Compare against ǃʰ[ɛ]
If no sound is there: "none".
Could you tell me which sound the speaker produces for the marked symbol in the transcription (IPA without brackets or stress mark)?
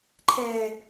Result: ɛː